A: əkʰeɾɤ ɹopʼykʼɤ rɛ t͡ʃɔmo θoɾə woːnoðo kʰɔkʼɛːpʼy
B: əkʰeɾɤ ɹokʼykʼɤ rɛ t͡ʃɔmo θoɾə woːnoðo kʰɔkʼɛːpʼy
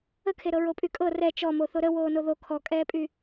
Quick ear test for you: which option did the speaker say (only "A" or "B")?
A